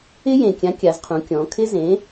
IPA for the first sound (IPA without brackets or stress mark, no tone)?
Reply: ɪ